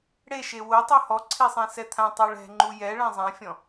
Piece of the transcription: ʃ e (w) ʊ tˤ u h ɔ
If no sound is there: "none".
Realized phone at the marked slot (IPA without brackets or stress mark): w